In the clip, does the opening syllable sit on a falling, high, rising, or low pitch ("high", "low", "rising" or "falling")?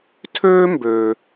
high